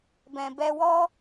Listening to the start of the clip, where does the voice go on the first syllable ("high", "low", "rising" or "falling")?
low